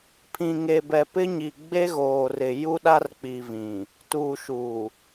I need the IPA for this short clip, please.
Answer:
pʰĩ˨ŋe˨bɛ˨ pɪ˦ɲi˨ ɡ͡be˦ɣoː˨rɪ˨ ju˦ɗa˦rk͡pi˨ vĩ˨ | tuː˨ʃuː˨

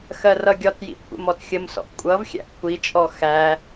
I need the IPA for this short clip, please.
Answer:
xɜrʌɡʲɒtjḭ kʷʰə̰mɔtxʲəmsɔ̰ʔ kʷʼʌv xʲæ̰ʔkʷʰit͡ʃʼɔ xæ

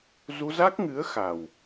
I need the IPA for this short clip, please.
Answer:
zu˧za˦˥k̚ŋɨ˨˦ə̯ xa˨˩w

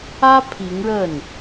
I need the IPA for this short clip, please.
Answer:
ä˥ pʰi˧˥ŋɻə˥˩n

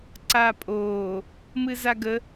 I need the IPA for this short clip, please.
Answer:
ǀapʼoː | mɨzaɡə

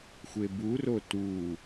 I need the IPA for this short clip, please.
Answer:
xʷeburo tu

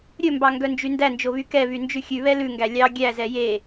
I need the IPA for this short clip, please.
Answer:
ɾʲɵmbɑŋɡœnd͡ʒy ndænd͡ʒoβy kɛβynd͡ʒʉ xʲʉβɛ lʉŋɡæ lʲɑ ɡʲæzɛ je

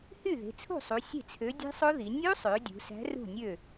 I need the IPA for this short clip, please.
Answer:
hy˥˩ðe̤˩˧t͡sʰṳ˥˩sˤu˩˧ sʲe̤˥˩t͡sʰø˨˥ dʲe̤˦˥sˤo˦˥ði˩˧ nʲu˦˥sˤø˩˧ dʲṳ˩˧ sæ̤˨˥rṳ˥˩nʲø˥˩

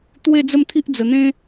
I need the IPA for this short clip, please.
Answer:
t̪we˥˧d͡zə˥˧mt̪ʰi˦ʔd͡zə˨˩ n̪ẽ˦

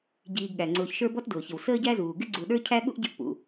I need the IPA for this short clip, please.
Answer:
ɟiː˨ɡɠæ˩ŋ͡ǀʊː˨çʃə˞˦ bɔ˥tdʊː˩çɪ˩w səː˦ɟæ˦zuː˩ ɡɪ˥ɡ͡ǀu˨ɗə˞˥ cʰæ˥ɠṵ˥ʔɟə˦ʔ pṵ˩

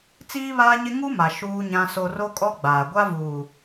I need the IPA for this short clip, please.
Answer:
t͡siː˦βaː˦ɲɪ˦ ŋu˦ma˨ ʃuː˦ɲã˦so˦ ro˦kʼɔ˦ɡ͡baː˨ɡʷa˦ vuː˨

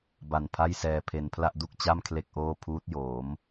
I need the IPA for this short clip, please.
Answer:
ba˨˩n pʰa˥˩jsɛː˧pʰe˧n pʰla˥˩ʔdu˥˩k̚t͡ɕa˥˩m kʰle˥˩k̚ʔoː˥˩ pʰuː˦˥t̚joː˩˦m

